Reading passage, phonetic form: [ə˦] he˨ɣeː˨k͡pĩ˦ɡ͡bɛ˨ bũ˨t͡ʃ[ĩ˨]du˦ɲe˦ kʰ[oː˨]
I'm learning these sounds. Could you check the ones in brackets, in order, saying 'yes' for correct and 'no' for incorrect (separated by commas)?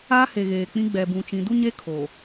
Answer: no, yes, yes